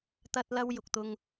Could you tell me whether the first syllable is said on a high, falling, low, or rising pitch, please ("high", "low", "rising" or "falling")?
high